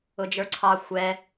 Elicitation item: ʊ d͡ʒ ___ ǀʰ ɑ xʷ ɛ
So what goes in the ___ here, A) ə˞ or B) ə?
A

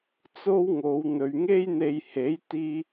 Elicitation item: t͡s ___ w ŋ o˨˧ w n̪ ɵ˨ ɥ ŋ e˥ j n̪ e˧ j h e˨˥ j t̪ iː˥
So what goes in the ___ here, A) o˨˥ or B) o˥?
B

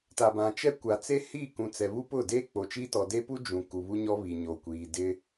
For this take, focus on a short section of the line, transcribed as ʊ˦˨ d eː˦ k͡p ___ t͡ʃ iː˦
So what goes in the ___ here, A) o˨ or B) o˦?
A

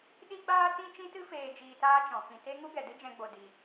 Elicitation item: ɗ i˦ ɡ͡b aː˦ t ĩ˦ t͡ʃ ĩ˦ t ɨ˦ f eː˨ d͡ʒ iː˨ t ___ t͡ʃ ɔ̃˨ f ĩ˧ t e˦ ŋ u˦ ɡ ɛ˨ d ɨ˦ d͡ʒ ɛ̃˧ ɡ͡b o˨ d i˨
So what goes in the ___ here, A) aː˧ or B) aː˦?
A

